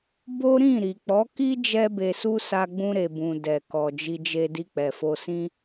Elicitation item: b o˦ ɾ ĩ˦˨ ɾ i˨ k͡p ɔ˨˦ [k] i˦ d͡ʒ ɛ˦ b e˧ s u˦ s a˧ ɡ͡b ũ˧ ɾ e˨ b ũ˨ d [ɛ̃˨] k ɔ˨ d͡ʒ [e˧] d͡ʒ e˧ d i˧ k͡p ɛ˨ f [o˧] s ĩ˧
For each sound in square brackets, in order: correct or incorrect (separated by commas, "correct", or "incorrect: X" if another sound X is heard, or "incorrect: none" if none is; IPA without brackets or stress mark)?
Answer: correct, incorrect: ɛ˨, incorrect: i˧, correct